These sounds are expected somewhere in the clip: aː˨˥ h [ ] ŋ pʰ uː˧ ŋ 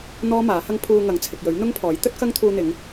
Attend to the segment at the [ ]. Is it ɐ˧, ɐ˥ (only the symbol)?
ɐ˥